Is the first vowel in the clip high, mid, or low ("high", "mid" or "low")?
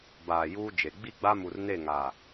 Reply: low